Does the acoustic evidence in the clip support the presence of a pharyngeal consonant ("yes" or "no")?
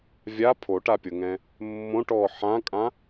yes